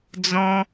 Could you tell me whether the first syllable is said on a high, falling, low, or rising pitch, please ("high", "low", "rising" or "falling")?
high